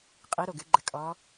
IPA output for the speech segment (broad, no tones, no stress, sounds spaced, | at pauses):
qʼ i ɾ o ɡ ɨ ɡ͡ǃ ɘ kʼ ɔ